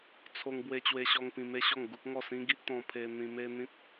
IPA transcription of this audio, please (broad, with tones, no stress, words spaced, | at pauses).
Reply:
t͡sʰo˧ŋ bwe˧t͡ɕwe˧ɕɔ˧ŋ pĩ˧me˦ɕɔ˥˧ŋ ɡu˦k̚ŋɔ˥˧ sĩ˦ɡi˦ʔ t̪ɔ̃˧pʰe˧n̪ĩ˧ me˦ n̪ĩ˦t̚